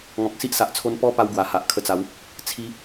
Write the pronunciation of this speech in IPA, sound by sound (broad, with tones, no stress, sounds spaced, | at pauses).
ŋ ɔ̃˨ k̚ s i˦ ʔ s a˨ ʔ t͡sʰ o˧ n p ɔ˦ p a˦ w ɡ w a˨˩ h a˨ ʔ kʰ ə˧ t͡s a˨˦ w | t͡sʰ i˦